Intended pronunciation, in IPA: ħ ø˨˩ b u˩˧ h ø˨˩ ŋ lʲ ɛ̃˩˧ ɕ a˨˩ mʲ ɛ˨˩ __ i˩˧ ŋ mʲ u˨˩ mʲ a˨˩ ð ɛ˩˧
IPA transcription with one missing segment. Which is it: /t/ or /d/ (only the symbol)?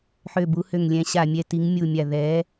t